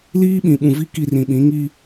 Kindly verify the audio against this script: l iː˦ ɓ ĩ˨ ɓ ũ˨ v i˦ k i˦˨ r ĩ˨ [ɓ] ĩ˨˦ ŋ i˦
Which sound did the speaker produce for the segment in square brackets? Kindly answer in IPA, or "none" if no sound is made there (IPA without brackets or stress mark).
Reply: ɓ